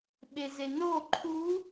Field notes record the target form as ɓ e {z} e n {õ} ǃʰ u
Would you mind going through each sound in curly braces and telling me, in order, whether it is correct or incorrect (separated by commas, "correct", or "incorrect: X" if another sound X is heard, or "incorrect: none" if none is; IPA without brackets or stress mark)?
correct, incorrect: o